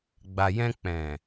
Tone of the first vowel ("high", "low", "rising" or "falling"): low